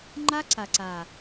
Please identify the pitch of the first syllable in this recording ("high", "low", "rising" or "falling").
high